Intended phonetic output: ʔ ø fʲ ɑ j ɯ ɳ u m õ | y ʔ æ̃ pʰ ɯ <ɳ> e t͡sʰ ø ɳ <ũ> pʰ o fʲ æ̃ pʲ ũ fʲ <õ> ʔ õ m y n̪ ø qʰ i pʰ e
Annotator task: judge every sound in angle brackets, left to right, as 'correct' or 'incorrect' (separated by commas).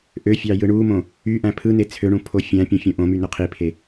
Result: incorrect, correct, correct